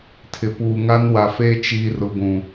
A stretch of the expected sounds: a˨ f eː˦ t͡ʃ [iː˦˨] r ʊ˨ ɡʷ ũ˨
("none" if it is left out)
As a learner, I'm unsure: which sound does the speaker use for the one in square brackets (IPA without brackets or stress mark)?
iː˨